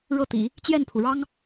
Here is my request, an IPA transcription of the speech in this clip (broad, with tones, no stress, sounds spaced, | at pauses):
ɻ ɤ˥˩ t̪ ḭ˨˩˦ | t͡ɕ j ɛ˥˩ n pʰ u˩ ɻ ɑ˥ ŋ